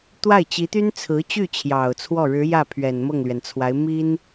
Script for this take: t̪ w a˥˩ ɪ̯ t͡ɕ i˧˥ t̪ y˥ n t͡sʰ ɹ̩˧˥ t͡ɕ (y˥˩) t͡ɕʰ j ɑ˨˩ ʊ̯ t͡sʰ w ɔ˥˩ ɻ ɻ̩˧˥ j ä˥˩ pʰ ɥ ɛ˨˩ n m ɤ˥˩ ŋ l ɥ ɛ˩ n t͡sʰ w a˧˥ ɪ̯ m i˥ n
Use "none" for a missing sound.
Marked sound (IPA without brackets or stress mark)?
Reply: y˥˩